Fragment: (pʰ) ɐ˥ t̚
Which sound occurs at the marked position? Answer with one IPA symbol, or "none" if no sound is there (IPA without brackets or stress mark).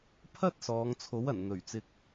pʰ